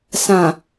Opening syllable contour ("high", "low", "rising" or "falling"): low